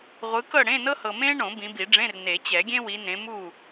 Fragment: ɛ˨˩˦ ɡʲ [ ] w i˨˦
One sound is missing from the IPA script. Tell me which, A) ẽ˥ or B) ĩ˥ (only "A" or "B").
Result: A